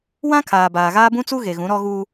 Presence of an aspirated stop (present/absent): present